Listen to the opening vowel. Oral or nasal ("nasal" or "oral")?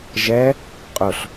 oral